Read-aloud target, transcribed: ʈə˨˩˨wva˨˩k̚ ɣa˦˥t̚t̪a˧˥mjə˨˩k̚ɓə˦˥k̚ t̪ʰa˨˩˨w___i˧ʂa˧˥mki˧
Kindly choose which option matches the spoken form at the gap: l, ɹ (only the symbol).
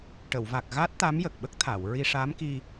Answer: ɹ